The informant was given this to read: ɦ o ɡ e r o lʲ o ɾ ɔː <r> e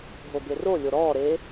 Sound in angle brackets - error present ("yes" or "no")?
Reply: yes